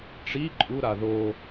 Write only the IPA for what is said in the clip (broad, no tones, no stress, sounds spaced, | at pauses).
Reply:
ʈ͡ʂ i ǃʼ u ɾ a ð o